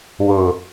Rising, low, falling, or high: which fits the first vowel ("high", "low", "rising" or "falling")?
low